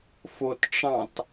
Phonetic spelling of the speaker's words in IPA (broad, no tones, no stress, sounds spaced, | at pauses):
f o t ʈ͡ʂ ɑ̃ t